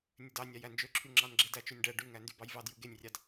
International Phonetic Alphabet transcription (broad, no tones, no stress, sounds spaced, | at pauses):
nʲ ø d ɑ nʲ ɑ j æ n d͡ʒ ø ǁʰ y ŋ͡ǁ ɑ n ɡ͡ǁ e d æ t͡ʃ ø nʲ ɖ æ ɖ y ŋ æ n d y b ɑ j v ɑ d j ɯ ɡ e nʲ rʲ ɑ d